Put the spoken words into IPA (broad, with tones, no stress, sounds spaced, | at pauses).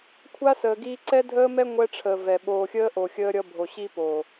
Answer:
kʷʰ a˦ s əː˨ ɡ iː˦ ǀ ɛ˦ dʱ əː˦ m ɛ˦ ŋʷ ɛ˦ ʈ͡ʂʰ əː˨ v ɛ˨ ɓ oː˨ xʲ əː˦ ʔ o˨ xʲ əː˦ ɾʲ ʌ˦ bʱ o˨ ɕ i˦ p o˨